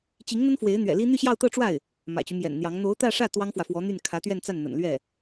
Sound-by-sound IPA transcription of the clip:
t͡ɕi˧˥ŋn̪ə˥n fwe˧˥ɪ̯n̪ɥɛ̰˨˩li˥ n̪y˥˧ɕjɑ˥˧ʊ̯t̪ɤ˥˧ʈ͡ʂwa˥˩ɪ̯ | mä̰˨˩t͡ɕy˦mjɛ̰˨˩nn̪jɑ˧˥ŋ n̪o˧˥ʊ̯t̪ä˥˧ʂä˥˩ t̪wɑ˥ŋfwä˨fwɔ˧˥n̪y˥˩n kʰä˧˥t̪ɥɛ˥˧nt͡sa˥˩nn̪ə̰˨˩n lɥɛ˥˩

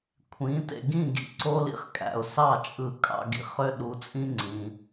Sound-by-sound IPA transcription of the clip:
kʷʰĩ˩˥ tḛ˩ɡĩ˥˩ ɡḭ˧ǀo˥lḭ˥χkʼæ̰˩ʊ̯ sɑ˥˩ t͡ʃʼɯ˧kʼɑ̰˧ɡḭ˩˥χ ø˥ɗu˧t͡sʼĩ˥ ŋ͡ǀĩ˩

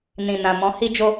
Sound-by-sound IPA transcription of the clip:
nĩ˨nã˨ mɔ̃˨˦hi˦d͡ʒo˦

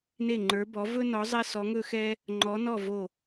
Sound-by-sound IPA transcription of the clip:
ne˥˩ŋ͡ǃə˞˨˥ bɔ˨˥vɵ˥nɔ˨˥ zˤɛ˥sɔ˨˥ŋɵ˥xɛ˥ | ŋ͡ǃɔ˨˥nɔ˥˩ vo˥˩

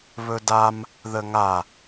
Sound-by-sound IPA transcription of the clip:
βɵdam | ðəŋa

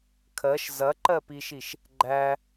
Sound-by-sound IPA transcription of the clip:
kʰɜʃ zɐǃɜpiʃiʃ | ɡ͡ǃæ

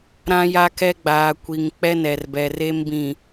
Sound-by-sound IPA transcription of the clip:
ɾã˦ja˦ kɛ˦ɡ͡baː˨ kʷi˨ŋ k͡pɛ˦nɛ˨rbɛ˨re˦m bĩ˨

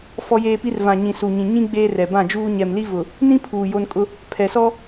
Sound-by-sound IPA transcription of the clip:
fɔ˦jeː˦pi˦r vã˨ɲĩ˨ su˨ɲĩ˨ɲĩ˦ ɡ͡beː˦rɛ˨ bã˦˨d͡ʒuː˦ ɲɛ˨mli˦ vʊ˨ | nĩ˦pʰuː˨ jo˦nkʼʊ˦ | pʰɛ˨sɔ˦

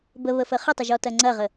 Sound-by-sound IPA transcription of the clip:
bəβəfə χətˤəʒɔtɐ ŋ͡ǀɐʁə

